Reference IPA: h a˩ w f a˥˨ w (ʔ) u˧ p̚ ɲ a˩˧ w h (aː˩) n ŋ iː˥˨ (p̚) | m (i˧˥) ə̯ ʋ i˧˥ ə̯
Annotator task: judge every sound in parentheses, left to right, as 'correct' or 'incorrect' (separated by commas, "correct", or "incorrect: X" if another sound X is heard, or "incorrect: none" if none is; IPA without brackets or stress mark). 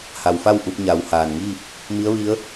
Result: correct, correct, correct, correct